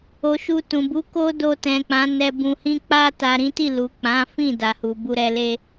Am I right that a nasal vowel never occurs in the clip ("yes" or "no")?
no